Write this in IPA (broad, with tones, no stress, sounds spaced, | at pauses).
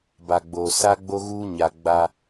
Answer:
b a˨ ɡ͡b oː˨ s a˦ ɡ͡b o˦ ɣ uː˦ ɲ a˨ ɡ͡b a˦